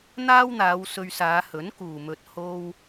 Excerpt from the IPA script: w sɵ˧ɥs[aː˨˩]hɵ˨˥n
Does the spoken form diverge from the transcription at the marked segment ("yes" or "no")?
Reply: yes